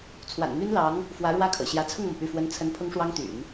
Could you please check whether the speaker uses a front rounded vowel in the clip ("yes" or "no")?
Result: yes